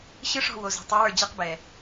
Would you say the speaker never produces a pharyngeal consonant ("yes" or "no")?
yes